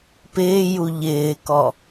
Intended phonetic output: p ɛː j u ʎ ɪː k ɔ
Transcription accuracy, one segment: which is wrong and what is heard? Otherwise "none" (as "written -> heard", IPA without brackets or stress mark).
ɛː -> ɪː